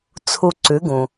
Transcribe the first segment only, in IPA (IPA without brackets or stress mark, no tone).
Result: t͡sʰ